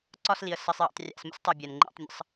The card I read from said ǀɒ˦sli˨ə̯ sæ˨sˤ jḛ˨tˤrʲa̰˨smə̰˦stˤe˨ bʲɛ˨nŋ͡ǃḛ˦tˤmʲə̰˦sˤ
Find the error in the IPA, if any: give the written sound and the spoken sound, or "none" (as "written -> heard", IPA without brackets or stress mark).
æ˨ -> ə˨